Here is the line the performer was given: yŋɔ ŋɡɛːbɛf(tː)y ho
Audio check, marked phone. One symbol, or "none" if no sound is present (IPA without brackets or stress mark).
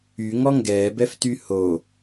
t